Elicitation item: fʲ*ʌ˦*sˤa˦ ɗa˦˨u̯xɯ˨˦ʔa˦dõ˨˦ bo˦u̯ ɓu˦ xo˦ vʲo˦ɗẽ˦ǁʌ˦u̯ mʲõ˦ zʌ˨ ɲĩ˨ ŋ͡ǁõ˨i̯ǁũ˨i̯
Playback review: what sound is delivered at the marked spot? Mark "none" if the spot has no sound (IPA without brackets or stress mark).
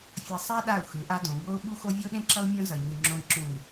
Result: ʌ˨